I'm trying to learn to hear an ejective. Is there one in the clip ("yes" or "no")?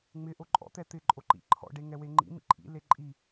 yes